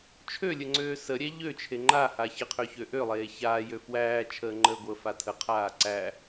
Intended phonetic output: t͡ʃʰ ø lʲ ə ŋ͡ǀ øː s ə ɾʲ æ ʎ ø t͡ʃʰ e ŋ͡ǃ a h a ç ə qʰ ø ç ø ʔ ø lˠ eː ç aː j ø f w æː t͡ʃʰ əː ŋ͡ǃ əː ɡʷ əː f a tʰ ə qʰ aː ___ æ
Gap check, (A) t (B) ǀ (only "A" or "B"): B